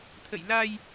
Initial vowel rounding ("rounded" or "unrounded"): unrounded